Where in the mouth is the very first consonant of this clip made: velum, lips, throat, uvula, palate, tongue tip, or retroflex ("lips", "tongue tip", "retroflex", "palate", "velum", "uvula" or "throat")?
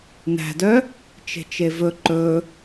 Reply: tongue tip